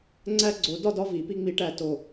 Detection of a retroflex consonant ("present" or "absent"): present